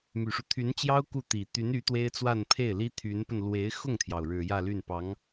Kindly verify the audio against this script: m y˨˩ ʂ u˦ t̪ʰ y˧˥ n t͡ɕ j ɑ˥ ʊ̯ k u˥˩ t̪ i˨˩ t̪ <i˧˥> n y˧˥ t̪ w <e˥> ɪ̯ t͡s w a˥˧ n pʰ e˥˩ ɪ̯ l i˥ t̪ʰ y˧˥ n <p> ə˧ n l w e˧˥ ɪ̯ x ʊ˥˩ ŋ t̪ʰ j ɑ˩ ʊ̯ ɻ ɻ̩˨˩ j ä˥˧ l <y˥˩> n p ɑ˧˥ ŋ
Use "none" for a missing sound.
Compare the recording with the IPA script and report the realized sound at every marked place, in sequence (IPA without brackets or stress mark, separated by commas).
y˧˥, e˥, p, y˥˩